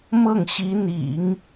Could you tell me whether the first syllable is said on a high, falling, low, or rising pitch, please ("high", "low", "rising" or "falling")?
falling